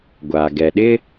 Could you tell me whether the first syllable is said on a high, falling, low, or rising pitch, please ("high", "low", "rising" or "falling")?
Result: low